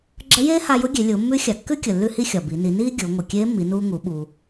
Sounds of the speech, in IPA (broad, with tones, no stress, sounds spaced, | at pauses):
ɡ͡ǁ ə˧˥ j eː˥ h a˧ j ʊ˧˥ ɡʲ e˩˧ lʲ ʊː˩˧ mː ʉ˧˥ xʲ a˩ kː ʉ˥ kʲ ə˩ lː ʉ˧ h i˥ xʲ ɒ˩ b i˩˧ n i˩˧ n iː˥ ɡʲ ʊː˩˧ ŋʷ ə˩ kʲ eː˧˥ mː i˩˧ n uː˧ ŋ u˩˧ ɓ uː˩